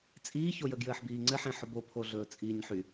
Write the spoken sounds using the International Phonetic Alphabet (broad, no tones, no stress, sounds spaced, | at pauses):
t͡sʼ iː ç o j ə ɡ j ɘː ħ b iː ŋ͡ǀ ɘ ħ ẽ ħ ʊ b o pʰ o ɮ ɵː t͡sʼ iː ɲ ħ y